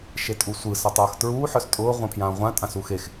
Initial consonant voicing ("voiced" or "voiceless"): voiceless